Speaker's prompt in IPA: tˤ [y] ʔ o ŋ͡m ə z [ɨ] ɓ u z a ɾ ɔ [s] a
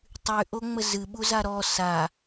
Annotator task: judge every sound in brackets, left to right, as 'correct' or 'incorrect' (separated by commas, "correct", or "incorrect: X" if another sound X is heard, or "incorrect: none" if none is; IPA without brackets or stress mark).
correct, correct, correct